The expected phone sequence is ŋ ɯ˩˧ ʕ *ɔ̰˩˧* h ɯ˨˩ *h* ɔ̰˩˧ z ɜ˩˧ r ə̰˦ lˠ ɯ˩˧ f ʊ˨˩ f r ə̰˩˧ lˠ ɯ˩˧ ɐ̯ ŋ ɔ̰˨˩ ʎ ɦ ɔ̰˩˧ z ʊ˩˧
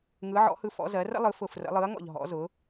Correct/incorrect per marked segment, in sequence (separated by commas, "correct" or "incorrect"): correct, incorrect